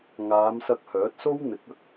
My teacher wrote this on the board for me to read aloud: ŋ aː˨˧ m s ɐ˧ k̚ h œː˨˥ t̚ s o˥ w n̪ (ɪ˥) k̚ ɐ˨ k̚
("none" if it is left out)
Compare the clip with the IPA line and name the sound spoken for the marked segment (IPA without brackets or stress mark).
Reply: ɪ˨˥